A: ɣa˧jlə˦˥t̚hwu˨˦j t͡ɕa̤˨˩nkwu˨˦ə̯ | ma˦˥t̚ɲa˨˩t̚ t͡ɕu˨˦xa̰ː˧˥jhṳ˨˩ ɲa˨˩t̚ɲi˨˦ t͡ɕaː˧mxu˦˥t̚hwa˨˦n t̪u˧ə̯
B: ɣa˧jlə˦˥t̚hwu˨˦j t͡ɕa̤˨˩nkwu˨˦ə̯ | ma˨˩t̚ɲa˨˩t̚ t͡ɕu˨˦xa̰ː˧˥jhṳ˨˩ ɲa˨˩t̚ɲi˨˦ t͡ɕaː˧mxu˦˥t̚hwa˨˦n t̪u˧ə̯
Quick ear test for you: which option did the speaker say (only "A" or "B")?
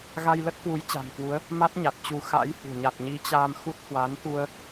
A